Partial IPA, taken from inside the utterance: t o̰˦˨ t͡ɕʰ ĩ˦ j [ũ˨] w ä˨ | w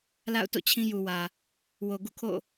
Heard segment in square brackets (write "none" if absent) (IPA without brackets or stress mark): u˨